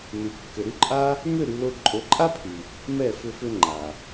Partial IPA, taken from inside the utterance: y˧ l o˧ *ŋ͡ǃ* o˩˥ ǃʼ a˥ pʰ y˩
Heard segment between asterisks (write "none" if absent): ǃʼ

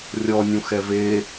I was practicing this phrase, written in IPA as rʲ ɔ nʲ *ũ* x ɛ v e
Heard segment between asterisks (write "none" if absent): ũ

